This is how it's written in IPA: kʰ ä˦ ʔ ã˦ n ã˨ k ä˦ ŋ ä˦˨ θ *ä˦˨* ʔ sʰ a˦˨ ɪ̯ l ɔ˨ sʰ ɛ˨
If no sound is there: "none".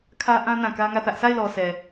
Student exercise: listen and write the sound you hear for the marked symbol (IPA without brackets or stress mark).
ä˦